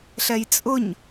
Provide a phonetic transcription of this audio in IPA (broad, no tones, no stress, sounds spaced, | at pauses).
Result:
ɬ ɛ j t͡sʼ ʊ ɲ